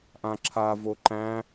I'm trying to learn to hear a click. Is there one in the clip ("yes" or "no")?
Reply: yes